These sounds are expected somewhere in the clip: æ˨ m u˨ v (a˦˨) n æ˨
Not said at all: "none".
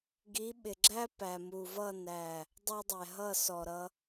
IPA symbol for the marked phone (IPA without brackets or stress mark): ʌ˦˨